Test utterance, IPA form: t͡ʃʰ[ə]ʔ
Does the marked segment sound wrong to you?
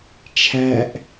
yes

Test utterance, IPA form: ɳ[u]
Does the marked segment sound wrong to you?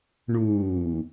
yes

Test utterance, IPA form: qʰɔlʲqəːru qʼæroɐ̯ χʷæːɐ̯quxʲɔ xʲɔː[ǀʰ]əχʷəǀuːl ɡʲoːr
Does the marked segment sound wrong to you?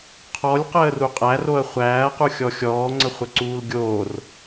yes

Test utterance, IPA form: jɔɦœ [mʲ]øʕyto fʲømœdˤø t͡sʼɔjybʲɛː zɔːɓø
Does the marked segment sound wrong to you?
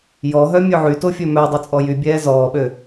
no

